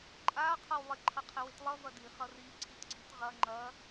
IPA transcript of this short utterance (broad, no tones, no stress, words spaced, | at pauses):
ǃʼa qʰɤwlˠɪ ǃʰʌqʰɪwɪtlˠʌ vɐdi χʌri ǀʰitɡ͡ǀitʁɐ ŋ͡ǃɐ